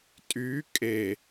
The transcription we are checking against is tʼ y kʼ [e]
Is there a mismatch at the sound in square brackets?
no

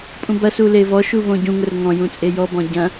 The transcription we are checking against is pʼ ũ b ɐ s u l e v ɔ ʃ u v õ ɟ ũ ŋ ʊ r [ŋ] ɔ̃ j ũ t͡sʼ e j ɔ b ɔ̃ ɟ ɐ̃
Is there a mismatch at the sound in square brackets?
no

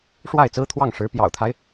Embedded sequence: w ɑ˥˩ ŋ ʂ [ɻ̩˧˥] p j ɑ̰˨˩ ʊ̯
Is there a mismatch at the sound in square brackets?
no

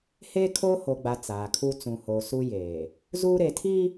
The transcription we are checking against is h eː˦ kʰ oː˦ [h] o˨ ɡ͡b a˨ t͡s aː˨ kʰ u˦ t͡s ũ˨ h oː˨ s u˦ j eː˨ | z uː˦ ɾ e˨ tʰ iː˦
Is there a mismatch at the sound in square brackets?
no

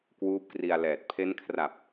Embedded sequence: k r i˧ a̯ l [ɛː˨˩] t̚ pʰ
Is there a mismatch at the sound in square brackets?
no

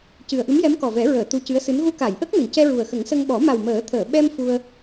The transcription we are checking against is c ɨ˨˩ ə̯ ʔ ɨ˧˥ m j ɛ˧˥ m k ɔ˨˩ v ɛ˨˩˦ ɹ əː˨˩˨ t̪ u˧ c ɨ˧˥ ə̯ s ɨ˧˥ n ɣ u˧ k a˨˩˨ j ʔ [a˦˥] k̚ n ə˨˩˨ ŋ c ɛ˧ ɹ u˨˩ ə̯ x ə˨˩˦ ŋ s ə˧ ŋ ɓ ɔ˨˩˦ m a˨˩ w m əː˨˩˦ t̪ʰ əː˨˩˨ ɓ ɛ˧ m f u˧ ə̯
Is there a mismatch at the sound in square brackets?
yes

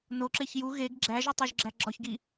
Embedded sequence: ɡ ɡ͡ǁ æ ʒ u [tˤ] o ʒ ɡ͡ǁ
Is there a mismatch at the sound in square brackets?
no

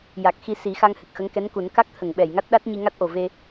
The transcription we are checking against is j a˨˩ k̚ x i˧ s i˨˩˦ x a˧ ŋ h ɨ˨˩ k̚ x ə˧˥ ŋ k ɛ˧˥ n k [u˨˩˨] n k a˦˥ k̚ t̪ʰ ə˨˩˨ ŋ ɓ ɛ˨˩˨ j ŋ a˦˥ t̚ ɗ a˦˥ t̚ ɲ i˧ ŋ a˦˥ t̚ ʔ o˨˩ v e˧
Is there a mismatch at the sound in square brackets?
yes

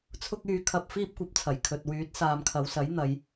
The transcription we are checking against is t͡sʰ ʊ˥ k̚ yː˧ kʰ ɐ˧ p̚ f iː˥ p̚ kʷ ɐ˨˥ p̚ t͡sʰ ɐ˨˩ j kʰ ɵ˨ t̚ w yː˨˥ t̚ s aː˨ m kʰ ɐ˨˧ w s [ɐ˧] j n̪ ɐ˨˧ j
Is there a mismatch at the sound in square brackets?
yes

